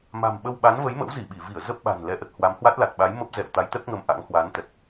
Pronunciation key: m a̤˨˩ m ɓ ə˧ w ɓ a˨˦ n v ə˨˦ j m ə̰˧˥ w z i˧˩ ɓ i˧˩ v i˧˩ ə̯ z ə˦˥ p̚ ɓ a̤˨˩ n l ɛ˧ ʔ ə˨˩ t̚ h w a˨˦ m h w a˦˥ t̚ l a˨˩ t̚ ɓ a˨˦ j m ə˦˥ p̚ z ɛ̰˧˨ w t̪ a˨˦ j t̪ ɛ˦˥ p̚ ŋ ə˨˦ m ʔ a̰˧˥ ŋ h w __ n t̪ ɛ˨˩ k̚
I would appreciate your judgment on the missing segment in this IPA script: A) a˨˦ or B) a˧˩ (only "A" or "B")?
A